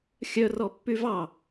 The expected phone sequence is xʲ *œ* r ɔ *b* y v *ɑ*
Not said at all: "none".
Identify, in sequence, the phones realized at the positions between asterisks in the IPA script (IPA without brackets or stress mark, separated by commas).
œ, pː, ɑ